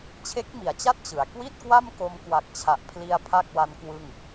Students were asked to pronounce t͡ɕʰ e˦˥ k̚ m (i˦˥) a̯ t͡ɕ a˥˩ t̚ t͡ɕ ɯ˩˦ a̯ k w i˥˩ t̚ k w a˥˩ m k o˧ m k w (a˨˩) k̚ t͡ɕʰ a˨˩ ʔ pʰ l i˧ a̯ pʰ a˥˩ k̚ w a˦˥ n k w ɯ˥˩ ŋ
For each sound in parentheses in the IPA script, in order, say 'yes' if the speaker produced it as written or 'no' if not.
no, yes

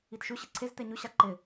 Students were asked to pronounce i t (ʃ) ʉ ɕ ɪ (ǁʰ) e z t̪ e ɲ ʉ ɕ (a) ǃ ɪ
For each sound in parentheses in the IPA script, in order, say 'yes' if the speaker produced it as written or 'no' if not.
yes, no, yes

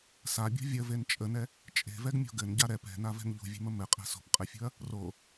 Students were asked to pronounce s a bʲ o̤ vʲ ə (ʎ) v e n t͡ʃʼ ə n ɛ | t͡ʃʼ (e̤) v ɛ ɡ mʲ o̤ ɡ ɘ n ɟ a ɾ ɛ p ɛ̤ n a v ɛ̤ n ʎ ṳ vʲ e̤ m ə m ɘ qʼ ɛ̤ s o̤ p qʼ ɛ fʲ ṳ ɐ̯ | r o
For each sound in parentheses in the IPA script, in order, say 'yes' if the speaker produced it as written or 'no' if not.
no, yes

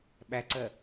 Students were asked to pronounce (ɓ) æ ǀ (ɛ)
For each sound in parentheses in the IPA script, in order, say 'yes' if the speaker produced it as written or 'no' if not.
yes, no

